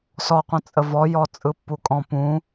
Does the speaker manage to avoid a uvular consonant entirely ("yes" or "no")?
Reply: no